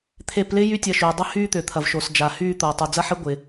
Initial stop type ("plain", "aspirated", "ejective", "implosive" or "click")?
aspirated